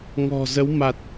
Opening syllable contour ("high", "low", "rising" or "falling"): low